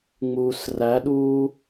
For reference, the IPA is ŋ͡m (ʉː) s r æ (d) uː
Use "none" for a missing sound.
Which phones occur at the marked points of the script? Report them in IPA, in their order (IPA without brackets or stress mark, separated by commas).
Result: uː, ɗ